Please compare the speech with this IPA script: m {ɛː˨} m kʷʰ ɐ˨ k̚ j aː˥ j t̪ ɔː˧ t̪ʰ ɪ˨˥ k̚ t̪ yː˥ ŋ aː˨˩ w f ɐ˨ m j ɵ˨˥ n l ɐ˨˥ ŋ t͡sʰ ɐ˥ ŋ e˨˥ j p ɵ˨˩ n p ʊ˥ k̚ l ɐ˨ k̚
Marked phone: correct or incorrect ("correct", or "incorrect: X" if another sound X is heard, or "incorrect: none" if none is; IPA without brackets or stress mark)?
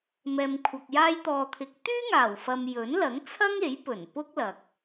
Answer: correct